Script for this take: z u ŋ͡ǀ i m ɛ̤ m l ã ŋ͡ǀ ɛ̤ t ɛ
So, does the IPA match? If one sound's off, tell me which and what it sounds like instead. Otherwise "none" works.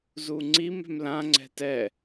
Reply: none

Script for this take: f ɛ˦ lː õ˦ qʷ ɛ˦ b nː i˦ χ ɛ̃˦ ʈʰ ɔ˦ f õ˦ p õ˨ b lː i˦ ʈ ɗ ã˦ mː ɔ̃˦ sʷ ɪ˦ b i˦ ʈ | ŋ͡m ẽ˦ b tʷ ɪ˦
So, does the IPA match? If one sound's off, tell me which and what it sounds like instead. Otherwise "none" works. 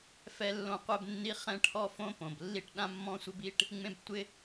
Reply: none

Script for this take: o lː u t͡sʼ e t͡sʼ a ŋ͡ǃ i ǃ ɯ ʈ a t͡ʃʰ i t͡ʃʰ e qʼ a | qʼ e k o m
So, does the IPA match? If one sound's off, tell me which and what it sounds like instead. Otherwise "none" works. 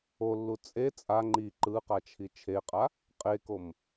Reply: ʈ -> q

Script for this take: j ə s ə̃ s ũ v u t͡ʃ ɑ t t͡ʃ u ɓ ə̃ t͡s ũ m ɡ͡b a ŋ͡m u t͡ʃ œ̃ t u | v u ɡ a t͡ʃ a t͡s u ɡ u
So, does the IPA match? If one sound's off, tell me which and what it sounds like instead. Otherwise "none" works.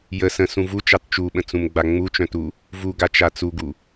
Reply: none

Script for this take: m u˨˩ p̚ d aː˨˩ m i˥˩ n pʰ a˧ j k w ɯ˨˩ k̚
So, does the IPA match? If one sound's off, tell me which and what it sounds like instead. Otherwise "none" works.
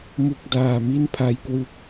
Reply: p̚ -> k̚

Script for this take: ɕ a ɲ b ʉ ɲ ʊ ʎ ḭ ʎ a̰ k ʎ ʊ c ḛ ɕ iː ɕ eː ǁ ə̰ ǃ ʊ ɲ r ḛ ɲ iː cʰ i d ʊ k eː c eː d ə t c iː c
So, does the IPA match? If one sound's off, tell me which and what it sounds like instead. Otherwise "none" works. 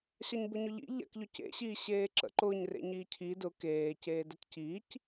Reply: ʉ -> ʊ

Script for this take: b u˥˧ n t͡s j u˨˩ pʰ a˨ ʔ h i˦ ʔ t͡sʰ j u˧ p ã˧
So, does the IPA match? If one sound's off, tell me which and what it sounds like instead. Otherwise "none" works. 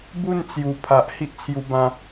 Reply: p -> b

